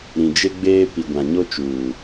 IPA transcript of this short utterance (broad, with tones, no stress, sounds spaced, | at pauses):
ɾ ĩ˨ d͡ʒ e˦ ɡ͡b eː˦ p i˨ ɡʷ ã˨ ɲ o˦ t͡ʃ uː˨